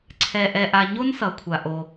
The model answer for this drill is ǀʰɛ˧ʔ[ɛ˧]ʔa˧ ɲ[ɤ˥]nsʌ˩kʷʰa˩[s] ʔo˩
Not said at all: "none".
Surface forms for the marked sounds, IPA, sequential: ɛ˧, o˥, none

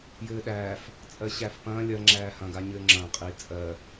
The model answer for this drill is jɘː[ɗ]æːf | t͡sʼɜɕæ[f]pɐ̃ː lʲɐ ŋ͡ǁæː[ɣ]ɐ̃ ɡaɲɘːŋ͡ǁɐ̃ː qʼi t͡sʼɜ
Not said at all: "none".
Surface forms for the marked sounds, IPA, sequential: ɗ, f, h

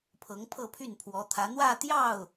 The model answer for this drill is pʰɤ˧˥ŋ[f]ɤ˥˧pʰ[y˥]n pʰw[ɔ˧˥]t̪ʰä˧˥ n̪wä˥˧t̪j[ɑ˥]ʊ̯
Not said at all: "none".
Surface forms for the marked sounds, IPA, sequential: pʰ, y˥˩, ɔ˧˥, ɑ˥˩

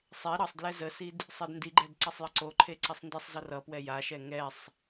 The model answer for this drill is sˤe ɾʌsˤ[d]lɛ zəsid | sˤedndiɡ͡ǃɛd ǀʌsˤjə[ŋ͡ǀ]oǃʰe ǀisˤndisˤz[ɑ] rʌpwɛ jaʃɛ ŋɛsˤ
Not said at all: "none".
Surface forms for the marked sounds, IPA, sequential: d, ǀ, ʌ

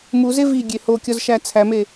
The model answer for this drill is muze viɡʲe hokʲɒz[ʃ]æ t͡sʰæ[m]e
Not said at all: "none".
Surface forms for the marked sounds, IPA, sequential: ʃ, m

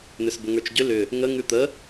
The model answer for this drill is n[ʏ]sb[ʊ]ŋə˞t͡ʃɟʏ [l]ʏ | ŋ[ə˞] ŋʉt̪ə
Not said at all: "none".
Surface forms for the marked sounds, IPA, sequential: ʏ, ʊ, l, ə

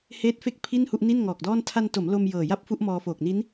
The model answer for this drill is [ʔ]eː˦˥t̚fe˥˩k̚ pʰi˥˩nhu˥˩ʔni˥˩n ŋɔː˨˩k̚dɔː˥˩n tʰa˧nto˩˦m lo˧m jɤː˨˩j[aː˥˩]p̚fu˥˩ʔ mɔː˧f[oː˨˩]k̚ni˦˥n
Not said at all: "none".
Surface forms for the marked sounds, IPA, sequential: h, a˥˩, oː˨˩

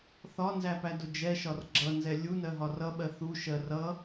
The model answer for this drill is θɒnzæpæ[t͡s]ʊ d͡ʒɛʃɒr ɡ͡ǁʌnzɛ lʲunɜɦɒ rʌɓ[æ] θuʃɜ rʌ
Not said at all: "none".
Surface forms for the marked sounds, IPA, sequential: d, ɜ

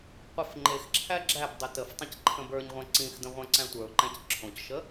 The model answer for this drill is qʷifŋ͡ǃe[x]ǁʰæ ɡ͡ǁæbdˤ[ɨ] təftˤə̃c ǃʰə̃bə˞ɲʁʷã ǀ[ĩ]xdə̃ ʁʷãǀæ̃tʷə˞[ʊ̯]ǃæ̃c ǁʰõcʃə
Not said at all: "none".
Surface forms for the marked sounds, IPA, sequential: x, e, ĩ, ʊ̯

